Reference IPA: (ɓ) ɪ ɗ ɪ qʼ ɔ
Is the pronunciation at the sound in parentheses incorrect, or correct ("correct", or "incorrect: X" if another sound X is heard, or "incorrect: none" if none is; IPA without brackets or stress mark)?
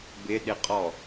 incorrect: b